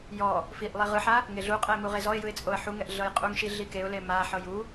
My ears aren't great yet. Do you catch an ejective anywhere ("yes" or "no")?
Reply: yes